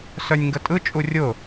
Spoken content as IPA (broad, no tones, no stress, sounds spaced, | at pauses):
s œ nʲ ŋ ɡ ə tʼ ɯ t͡ʃʼ u rʲ ʊ